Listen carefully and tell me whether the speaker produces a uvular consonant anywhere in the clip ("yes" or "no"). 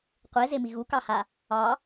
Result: yes